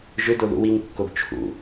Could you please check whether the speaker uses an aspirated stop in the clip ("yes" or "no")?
yes